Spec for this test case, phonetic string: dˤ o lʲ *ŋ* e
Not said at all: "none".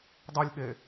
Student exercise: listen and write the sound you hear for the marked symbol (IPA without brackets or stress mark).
ɠ